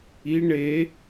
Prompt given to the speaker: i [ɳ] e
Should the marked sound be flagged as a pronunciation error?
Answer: no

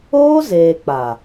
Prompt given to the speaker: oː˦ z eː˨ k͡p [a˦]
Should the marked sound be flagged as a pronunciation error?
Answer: yes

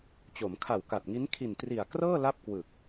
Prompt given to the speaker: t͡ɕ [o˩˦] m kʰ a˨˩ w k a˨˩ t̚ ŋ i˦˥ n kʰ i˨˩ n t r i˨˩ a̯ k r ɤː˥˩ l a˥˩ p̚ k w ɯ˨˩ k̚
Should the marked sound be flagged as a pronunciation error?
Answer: no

